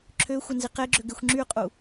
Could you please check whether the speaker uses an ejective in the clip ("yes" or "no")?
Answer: yes